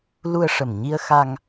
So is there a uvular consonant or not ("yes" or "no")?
no